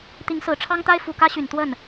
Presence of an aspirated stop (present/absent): present